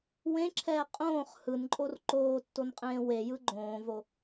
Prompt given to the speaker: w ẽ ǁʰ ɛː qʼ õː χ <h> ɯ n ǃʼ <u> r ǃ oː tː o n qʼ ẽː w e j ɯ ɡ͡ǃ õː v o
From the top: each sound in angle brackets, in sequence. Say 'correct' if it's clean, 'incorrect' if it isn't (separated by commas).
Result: correct, incorrect